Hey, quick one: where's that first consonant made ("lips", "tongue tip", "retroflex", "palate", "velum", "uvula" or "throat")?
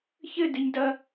palate